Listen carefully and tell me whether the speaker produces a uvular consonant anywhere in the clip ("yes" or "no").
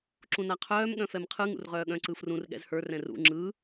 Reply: yes